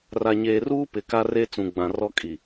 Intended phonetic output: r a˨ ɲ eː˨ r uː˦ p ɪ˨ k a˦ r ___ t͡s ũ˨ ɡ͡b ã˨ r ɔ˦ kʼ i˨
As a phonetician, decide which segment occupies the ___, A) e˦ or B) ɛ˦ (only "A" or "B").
A